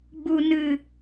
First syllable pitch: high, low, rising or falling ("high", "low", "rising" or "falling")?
low